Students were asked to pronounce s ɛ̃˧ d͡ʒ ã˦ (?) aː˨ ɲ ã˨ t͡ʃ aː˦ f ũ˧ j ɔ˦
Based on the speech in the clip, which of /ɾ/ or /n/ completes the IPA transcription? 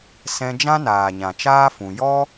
n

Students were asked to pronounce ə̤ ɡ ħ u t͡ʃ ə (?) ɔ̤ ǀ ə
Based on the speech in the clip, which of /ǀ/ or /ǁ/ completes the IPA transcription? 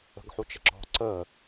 ǁ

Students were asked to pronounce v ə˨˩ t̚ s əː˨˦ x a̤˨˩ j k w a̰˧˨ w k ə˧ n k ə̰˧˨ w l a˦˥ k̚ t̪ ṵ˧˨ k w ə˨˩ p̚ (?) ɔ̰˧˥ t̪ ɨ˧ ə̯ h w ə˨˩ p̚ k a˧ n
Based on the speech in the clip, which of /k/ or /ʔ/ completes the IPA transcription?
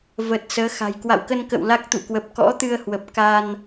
k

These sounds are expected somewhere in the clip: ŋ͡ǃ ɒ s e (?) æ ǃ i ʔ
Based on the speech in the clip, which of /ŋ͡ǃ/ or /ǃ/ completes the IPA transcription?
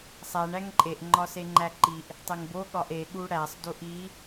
ŋ͡ǃ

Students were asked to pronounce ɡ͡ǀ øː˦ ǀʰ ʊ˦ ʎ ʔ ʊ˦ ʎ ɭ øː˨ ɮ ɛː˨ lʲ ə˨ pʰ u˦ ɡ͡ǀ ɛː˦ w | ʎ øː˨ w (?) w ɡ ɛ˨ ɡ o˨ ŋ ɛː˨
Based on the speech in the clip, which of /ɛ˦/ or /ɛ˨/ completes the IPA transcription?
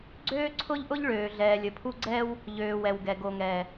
ɛ˨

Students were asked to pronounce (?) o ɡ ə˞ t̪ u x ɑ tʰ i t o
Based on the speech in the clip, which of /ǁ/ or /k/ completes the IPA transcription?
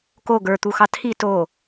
k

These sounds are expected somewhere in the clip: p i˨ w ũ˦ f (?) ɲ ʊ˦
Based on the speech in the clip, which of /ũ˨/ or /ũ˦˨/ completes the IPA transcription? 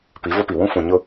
ũ˨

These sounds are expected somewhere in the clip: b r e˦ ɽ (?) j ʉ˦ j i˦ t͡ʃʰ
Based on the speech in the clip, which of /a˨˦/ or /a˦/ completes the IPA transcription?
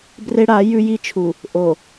a˨˦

